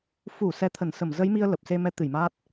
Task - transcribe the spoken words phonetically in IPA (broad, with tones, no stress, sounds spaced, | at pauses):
f u˧˩ s ɛ˨˦ t̪ʰ ə˧˩ n s ə˧˩ m z ə˨˦ j m i˧ ə̯ l ə˨˩ p̚ s e˧ m ɛ˨˦ t̪ ɨ˧˩ j m aː˦˥ t̚